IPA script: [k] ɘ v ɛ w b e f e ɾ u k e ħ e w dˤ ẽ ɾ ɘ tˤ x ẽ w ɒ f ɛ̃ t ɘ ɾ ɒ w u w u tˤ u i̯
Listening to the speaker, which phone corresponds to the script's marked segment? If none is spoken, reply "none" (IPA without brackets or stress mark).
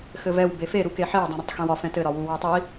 x